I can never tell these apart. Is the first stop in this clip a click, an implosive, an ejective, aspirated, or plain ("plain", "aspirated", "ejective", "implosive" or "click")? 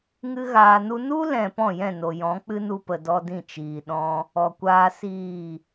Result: plain